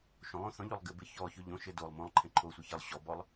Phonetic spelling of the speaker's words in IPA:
ʃ õ lˠ õ θ ɔ̃ ʎ o lˠ ɡ ɘ b ɘ ç ɔ ç ɵ ʎ õ ʃ ɘ d o lˠ m õ lˠ ǃʰ ɛ̃ ǃʰ o sʷ ɛ ç ɘ lˠ ɕ ɔ b ɔ lˠ

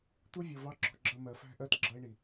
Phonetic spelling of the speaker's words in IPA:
t̪ u˦ vʲ ʊ˨ v ɑ˦ ǁ ɔ̤˨ ɡ͡ǁ ʌ˦˨ m ɜ˨ f æ̤˦ ʔ ɜ˦ t ɡ͡ǁ ʌ˦ e̯ ɳ i˨

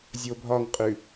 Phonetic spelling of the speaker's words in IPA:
zʲ o bʱ ɒ ŋ qʼ ʉ

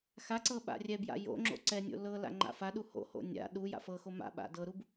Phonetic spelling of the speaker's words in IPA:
x a ǀ ɤ ɓ a̰ rʲ ɛ b j a̰ j o̰ ŋ͡ǁ o̰ ǀ ɛ nʲ o̰ l ɤ l a̰ ŋ͡ǃ a̰ f a ɗ u h o̰ h o̰ nʲ a̰ ɗ u j a̰ f ɤ x o m a̰ ɓ a̰ d ɤ ɾ u b

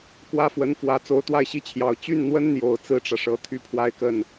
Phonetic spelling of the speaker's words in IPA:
k w ä˥ f w ə˧˥ n f w ä˧˥ t͡s o˧˥ ʊ̯ t̪ w a˥˧ ɪ̯ ɕ i˥˩ t͡ɕʰ j ɑ˨˩ ʊ̯ t͡ɕ y˥˩ n n̪ w ə˥ n n̪ j o˨˩ ʊ̯ t͡s ɹ̩˥ ʈ͡ʂ ä˨ ʂ ɤ˧˥ t̪ʰ y˥ pʰ w a˥˧ ɪ̯ k ə˥˩ n

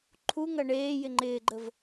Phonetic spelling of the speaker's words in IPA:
ǃʰ u ŋ ɐ ɳ eː j ɪ ŋ͡ǃ ɪː ɡ͡ǃ ə v

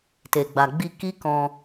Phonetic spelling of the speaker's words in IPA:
t e˨ ɡ͡b a˨ ɡ͡b i˧ k i˦ k ɔ̃˧

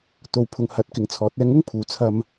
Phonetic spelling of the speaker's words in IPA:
t̪ o˨˧ w pʰ ʊ˨ ŋ h ɐ˨˥ t̚ k ɪ˨ ŋ t͡sʰ ɔː˨˥ t̚ ɛː˧ ŋ ʊ˥ ŋ pʰ uː˨˥ t͡sʰ ɐ˧ m

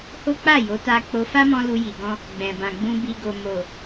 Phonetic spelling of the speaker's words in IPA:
h o˦ k͡p a˦˨ j o˨˦ t a˧ k͡p o˧ f a˦ m ɔ̃˧ l u˧ j i˨ ɡ ɔ̃˧ | ɡ͡b ɛ̃˨ b ã˨ ɡ͡b ũ˧ b i˨ ɡ o˨ m o˨

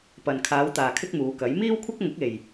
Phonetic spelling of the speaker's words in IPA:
p ɐ˨ n kʰ aː˨˧ w t̪ aː˨ kʰ ɪ˥ k̚ m uː˨˧ k ɐ˨˥ j m iː˥ w kʷʰ ɪ˥ k̚ ŋ ʊ˨˥ k̚ e˨ j

